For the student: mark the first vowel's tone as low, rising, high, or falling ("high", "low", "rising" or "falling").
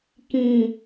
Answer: low